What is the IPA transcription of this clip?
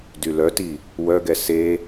d y l œ t i | w œ ɡ ɛ s e

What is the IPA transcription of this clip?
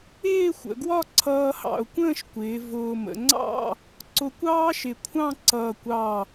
ɪː˥˧ xʷ ə̰˩˧ ɡ w ɒ˥˧ ǀʰ ʌː˧ h ɑ̰˧˩ ʊ̯ kʷ ə̃ː˥˧ ʃ kʷ ɪː˩˧ v ʊː˧ m ə̰˩˧ ŋ͡ǀ ɑ̰˥˧ | ǀ ʊ˧ kʷ ɑː˥ ʃ ɪ˧˩ kʷʰ ɑ̃˥˧ ǀ ʌː˧˩ kʷ ɑ˧˩

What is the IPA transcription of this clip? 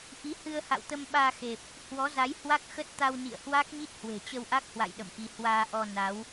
ʔ i˨˦ h ɨ˧ ə̯ h a̰˧˨ w t̪ ə˧ m ɓ aː˧ x e˨˩ p̚ | h w ɔ˨˦ z a˨˦ j h w a˦˥ k̚ x ə˦˥ t̚ t̪ a˧ w n ḭ˧˨ ə̯ h w a˦˥ k̚ ɲ i˦˥ t̚ h w e̤˨˩ t͡ɕ ə˧ w ʔ a˦˥ k̚ h w a̰˧˨ j ɗ ə̰˧˨ m ʔ i˧ h w aː˧ ʔ ɔ˧ n a˨˦ w

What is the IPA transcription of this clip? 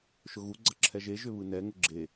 ʃ ʊ ɣ u ɡ͡ǀ ʌ ǁʰ ɛ ʒ e ʒ ʏ β ɯ n ɛ ŋ ʊ ɡ͡ǁ e

